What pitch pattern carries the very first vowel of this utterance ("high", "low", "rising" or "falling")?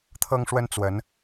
high